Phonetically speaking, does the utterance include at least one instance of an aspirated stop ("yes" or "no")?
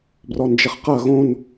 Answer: no